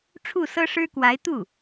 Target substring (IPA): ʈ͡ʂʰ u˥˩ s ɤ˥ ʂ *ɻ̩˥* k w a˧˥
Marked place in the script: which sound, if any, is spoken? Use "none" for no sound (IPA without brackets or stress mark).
ɻ̩˥